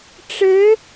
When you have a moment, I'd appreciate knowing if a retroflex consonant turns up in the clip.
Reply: yes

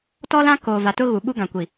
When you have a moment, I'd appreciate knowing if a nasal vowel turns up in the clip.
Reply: yes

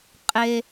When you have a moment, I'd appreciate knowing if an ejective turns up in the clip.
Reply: yes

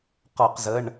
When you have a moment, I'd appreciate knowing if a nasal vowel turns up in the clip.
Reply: no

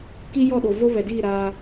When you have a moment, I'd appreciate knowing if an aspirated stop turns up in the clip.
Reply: no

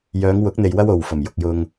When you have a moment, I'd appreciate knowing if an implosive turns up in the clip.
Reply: no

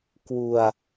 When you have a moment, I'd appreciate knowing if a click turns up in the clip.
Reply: no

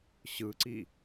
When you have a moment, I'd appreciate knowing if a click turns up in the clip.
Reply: yes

